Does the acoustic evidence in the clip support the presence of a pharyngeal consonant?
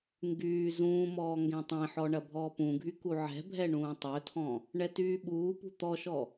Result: yes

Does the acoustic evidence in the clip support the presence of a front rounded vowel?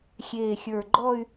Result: yes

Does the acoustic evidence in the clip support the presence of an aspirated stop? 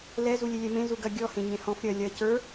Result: no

